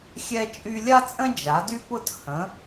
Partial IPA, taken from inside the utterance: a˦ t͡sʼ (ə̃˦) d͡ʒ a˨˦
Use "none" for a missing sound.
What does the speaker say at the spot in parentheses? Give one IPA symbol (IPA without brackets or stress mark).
ə̃˦